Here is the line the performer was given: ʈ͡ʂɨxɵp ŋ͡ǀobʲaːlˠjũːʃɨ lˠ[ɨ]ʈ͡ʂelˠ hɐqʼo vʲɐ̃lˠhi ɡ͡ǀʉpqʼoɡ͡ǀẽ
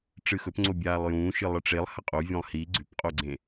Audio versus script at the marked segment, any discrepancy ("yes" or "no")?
no